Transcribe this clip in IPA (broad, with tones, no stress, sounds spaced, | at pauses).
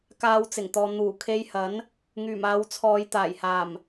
k aː˧ w t͡s ɪ˨˩ ŋ t̪ ɔː˨ n̪ uː˨˩ kʰ e˧ j h ɐ˨˥ n | ŋ yː˨˩ m aː˨˧ w t͡sʰ ɔː˨˧ j t̪ aː˨˩ j h aː˨˩ m